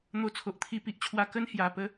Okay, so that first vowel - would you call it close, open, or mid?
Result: mid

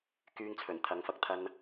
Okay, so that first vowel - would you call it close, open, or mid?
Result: close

